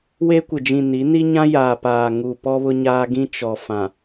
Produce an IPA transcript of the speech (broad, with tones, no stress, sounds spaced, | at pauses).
w e˦ kʷ ɪ˨ d͡ʒ ĩ˨ n i˨˦ n i˦ ɲ ã˦ j aː˨ p aː˨ ŋ u˨ p ɔ˦ β ʊ˦ ɲ aː˦ ɡ ĩ˦ t͡ʃ ɔ˨ f ã˨